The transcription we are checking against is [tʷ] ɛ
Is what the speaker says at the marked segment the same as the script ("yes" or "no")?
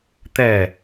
no